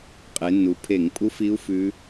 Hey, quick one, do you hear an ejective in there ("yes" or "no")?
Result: yes